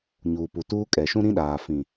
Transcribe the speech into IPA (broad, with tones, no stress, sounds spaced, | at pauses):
ɲ uː˨ p u˨ t uː˦ kʼ ɛ˨ ʃ ũ˦ ɾ ĩ˦ ɗ aː˨ f ĩ˨